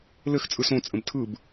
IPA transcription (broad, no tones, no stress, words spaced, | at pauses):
lɘx t͡sʼɯsõ t͡sʼə̃btʰɯb